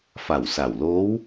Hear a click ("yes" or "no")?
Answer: no